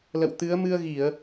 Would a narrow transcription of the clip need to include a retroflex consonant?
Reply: no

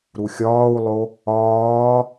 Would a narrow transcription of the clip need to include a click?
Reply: no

